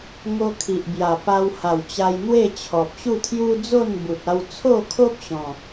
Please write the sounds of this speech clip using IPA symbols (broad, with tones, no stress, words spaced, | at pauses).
ŋo˧kʰi˨ʔbja˨˩ pa˧w ha˨˩wt͡ɕa˧jn̪we˥˧ t͡ɕʰɔ˨p̚ɕu˥˧t̪ʰju˦ d͡zo˥˧nbu˨t̚a˧w t͡sʰo˥˧kʰo˦p̚ ɕɔ̃˨˩